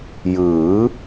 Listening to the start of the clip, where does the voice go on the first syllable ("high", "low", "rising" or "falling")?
rising